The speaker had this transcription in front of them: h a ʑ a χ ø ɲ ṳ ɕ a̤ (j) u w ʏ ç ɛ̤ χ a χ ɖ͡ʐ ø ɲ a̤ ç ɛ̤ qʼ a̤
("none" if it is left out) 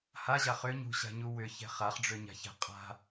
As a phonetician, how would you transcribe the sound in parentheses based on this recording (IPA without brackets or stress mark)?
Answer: ɲ